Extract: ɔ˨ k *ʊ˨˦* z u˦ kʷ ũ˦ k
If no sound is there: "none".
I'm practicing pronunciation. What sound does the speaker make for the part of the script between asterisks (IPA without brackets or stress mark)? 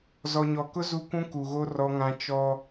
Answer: ʊ˦